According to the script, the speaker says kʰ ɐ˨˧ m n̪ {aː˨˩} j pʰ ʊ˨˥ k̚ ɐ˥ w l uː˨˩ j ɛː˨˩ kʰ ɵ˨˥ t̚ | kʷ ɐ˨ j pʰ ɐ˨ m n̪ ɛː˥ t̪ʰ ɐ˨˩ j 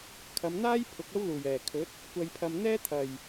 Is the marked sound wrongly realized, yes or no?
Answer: yes